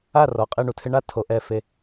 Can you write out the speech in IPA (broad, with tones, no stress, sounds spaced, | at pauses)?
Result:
a˥˩ r ɔ˩ qʼ ɪ˥˩ ɳ u˩ tʰ ɪ˧ ɳ a˥˩ tʰ o˩˥ ʔ ɛ˧ f e˧